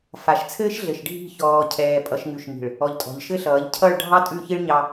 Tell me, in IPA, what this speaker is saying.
f a˨ ʃ t͡sʰ ɘː˦ ʃ ɮ ɘ˨ ʃ ɖʱ i̤˦˨ ç ɔː˨ cʰ ɛː˨ pʼ ʌ˨ ʃ ŋ ʉ˨ ʃ m i̤˨ ɭ | ɔ˨ ʎ tʼ ɔ̤˨ ʎ ʃ ɘ˦ ɬ ʌː˨˦ ʎ cʰ ʌ˦˨ ɭ ɖʱ ɑ˦ tʼ ʉ˦˨ ç i˦ ɭ ɲ ɑ˦

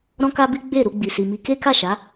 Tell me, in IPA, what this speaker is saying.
ɾ ɔ̃˦ k a˦ b i˦ ɡ͡b e˦˨ ɾ u˧ ɡ͡b i˨ s i˨ m i˧ k e˦ k a˦˨ ʃ a˨˦

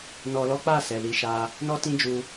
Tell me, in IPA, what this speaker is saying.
n ɔ˧ l ɔ˦ k͡p a˦˨ s ɛ˨ l i˧ ʃ a˦ | n ɔ˦ t ĩ˦ d͡ʒ u˧

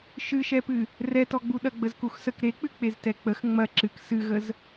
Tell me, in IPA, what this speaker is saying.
ʃ ɨ ʃ ɛ p ɨ | r ɛ t ɔ ɡ͡b u ɗ ɐ ɡ͡b ə z k u x s ə k ɾ e k͡p ɨ k͡p e z t ɛ k͡p ə x ŋ͡m ɐ ǁ ɨ k s ɨ ɣ ə z

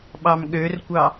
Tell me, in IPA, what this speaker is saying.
ɓ ɑ m ɠ ø r kʷ ɑ

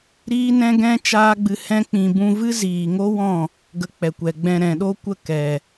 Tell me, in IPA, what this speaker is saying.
ɾ iː˦ n ɛ̃˦ ɡ ɛ̃˦ t͡ʃ aː˦ ɡ͡b ɨ˧ h ɛ̃˦ k͡p ĩ˧ b ũ˧ v ɨ˦ z iː˨ ŋ o˦ w ɔ̃˦˨ | ɡ ə˧ k͡p ɛ˨ kʷ ɛ˨ ɡ͡b ɛ̃˧ ɾ ɛ̃˨ ɗ o˦ kʷ ə˦˨ k ɛ˨

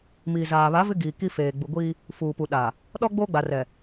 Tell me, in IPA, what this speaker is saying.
m iː˨ z aː˨ β a˨˦ v ɪ˦ ɡ iː˨ k i˦ f eː˨ ɡ͡b u˨ ɡʷ iː˦ | f uː˨ p u˨ ɗ a˨ | ɗ ɔ˦ ɡ͡b oː˦ ɡ͡b a˨ r ɛ˨

